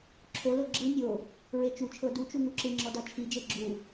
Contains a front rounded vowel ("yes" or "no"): no